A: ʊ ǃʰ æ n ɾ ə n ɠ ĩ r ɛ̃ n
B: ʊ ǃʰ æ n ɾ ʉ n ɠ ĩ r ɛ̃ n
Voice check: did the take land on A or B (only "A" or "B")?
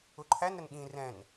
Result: A